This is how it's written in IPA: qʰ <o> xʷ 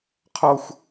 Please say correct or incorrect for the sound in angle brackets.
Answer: incorrect